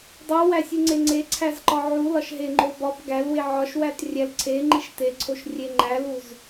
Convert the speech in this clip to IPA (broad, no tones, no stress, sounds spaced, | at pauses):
dˤ u w æ sʲ u ŋ͡ǀ e ŋ͡ǀ e ǀʰ æ z ǃ ɒ ʕ u l ɒ ʃ ɦ e ŋ͡ǃ o b ɒ b ɡ æ l w e ʕ ɒ ʃ w æ t rʲ æ l ǀʰ e ŋ͡ǃ i ʃ t e ǀʰ o ʃ rʲ e ŋ͡ǃ æ l u z